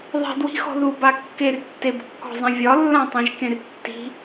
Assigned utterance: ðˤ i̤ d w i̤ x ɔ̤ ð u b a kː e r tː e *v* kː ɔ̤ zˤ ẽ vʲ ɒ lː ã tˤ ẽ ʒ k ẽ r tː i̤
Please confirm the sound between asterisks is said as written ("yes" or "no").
no